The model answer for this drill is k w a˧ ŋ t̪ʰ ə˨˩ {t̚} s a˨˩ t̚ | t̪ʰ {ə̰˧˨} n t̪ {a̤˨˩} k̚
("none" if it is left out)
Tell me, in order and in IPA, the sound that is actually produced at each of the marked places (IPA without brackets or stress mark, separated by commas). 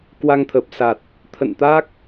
p̚, ə̰˧˨, a˦˥